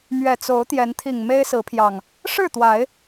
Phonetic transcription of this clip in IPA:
mɥɛ˨˩t͡so˨˦ʊ̯ t̪jɛ˨˦nt̪ʰi˨˩ŋ me˦ɪ̯sɹ̩˨˦pʰjɑ˨˩ŋ | ʂɻ̩˥˨t̪wa˨˦ɪ̯

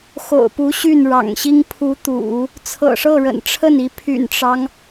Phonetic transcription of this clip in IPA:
xo̰˨˩ʊ̯pu˧˥ ɕy˥˩nɻɑ̰˨˩ŋɕi˥ŋ pʰu˧˥t̪ṵ˨˩˦ | t͡sʰɤ̰˨˩ʂɤ˥˩ɻə̰˨˩nʈ͡ʂʰə˥˩n i˧˥pʰy̰˨˩nʈ͡ʂɑ˦ŋ

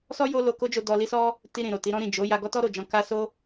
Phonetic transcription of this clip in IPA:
sɔ˦ jo˦lo˧ko˦d͡ʒo˧ dɔ˧li˦sɔ˦ | ti˧ ɾĩ˨ ɾo˨ti˨˦ɾɔ̃˦ ɾĩ˦˨ d͡ʒo˨˦ ja˧ ɡɔ˦tɔ˦ ɾo˦˨ d͡ʒɔ̃˧ ka˦ so˦

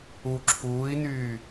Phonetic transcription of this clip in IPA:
u ǁʰuːi̯nyː

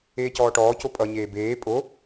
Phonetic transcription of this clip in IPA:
eːcɔːʈɔːco pʼʌɲeː beː pʼo

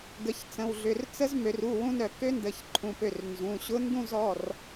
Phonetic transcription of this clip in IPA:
ɡə˩˧çt͡sə̃˩˧˩wɮʏ˩˧˩r t͡sə˧˥zmø˩˧r u˩˧˩ wũ˧nœ˧˩kø˧˥ndə˩˧˩ç ǃʰũ˩˧˩pø˧˩r nzũ˩˧˩ɕʊ˧˥ ndũ˥˨zɔ˩˧˩r

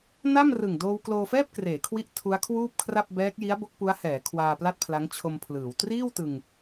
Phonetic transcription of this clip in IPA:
na˥˩mrɯ˨˩ŋ doː˧wkloː˧fɛː˥˩p̚ kreː˩˦kʰwi˦˥ʔ tʰu˦˥a̯kʰwuː˥˩p̚kʰra˥˩p̚ bɛː˦˥k̚ji˦˥a̯ bo˦˥k̚pu˦˥a̯hɛː˩˦ kʰwaː˧pla˥˩t̚pʰla˦˥ŋ t͡ɕʰo˧mpʰlɯː˩˦w triː˥˩wtɯ˧ŋ

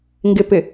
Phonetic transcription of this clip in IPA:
ŋɡɪpɪ

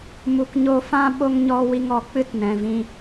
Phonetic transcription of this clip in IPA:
mu˨kɲo˧ fã˦ ɓo˧ŋɲɔ˧ wi˧ŋɔ˨ k͡pɨ˦tnɛ̃˨vĩ˧

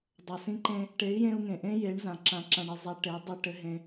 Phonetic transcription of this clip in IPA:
dˤa˨sĩ˧ǃẽ˧ | ʈe˨˦i̯jẽ˧u̯ŋẽ˨ʔẽ˦ je˨˦ɳ zã˨ǁã˧ǁã˧ɳ ɘ˧ zˤa˧ʈe˨˦ dˤə˞˧ʈɘ˨˦ɦẽ˧

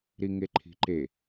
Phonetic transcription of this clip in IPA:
ɾiŋeǃʰi̤ǃe

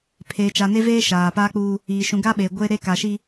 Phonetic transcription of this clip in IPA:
pʰeː˨t͡ʃa˨ne˦veː˦ ʃaː˨paː˦k͡puː˦ | iː˨ ʃũ˨ɡa˦ɓeː˨ ɡʷe˦ɾe˦ ka˨ʃi˦

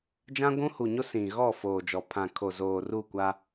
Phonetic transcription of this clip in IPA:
d͡ʒã˦ɡʷũ˦hu˨ɲo˦ sĩ˨ɣɔ˦˨ foː˨d͡ʒɔ˨ pʰã˨kʰo˨ zoː˨ru˦˨kʷa˦

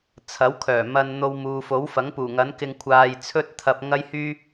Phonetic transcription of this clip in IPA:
t͡sʰɐ˨˥wkʰœː˨˩mɐ˧n n̪o˧wmuː˨fo˨˥wfɐ˨˥ŋ puː˨˩ŋɐ˨˥nkɪ˧ŋ kʷʰaː˧jt͡sʰɵ˥t̚t̪ʰɐ˧p̚ ŋɐ˥jhyː˥

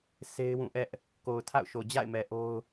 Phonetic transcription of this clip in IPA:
se˦ɪ̯ wũ˦˨ʔɛ˦ʔ | ko˨ʊ̯tʰa̰˦˨ʊ̯ʃo˨ d͡ʑa̰˦˨ɪ̯mɛ˨ ʔo˦ʊ̯

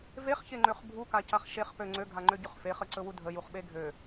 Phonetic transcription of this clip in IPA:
veχçeŋ͡ǃøχ bʱukacaχ ʃeχpø ŋ͡ǀøɡʱaŋ͡ǃøɟɵχ feχəǀɵwu dʱəjuχɓe ɡʱø

